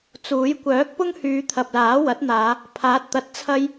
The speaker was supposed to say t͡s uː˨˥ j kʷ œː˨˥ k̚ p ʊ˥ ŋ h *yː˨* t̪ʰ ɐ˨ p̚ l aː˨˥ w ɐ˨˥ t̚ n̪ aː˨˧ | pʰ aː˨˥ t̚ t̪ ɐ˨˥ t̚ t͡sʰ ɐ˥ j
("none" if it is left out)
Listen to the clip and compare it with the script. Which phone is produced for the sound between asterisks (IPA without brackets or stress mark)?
yː˨˧